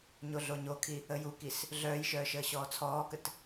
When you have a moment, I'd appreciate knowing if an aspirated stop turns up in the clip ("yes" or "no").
yes